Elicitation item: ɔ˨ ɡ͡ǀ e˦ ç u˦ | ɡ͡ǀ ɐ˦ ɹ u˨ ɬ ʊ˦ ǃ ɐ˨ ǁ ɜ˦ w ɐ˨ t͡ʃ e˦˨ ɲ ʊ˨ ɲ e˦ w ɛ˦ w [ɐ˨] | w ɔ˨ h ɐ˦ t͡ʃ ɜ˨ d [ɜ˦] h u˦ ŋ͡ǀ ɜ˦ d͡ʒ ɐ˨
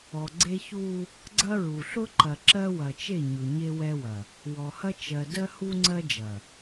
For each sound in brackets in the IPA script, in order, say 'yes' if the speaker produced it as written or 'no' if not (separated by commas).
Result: yes, yes